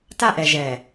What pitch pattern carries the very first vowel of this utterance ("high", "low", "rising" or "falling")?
high